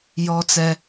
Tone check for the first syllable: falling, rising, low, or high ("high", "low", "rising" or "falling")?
high